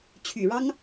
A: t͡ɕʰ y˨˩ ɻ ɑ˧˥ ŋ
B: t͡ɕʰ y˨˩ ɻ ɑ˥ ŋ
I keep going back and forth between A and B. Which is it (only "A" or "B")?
B